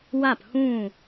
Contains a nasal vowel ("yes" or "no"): yes